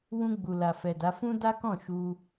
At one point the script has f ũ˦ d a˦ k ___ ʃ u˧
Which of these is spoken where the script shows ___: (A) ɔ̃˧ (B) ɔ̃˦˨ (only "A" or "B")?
B